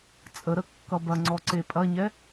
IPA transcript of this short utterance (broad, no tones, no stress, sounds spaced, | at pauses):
t͡sʼ ə ɾ ə kː ʌ b ɐ ŋ͡ǀ ɔ ǀ e pʼ ɐ ɲ ɛ